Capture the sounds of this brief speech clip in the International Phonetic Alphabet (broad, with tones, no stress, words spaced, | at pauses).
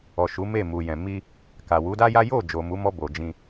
ɔ˨ ʃu˨˦ me˦˨mu˨jɛ̃˨ mi˧ | ka˨wu˨˦da˦ja˦ jo˦˨ d͡ʒo˨mu˨˦mɔ˧bo˨ d͡ʒĩ˧